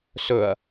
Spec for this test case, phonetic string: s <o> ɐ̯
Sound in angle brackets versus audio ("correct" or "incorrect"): incorrect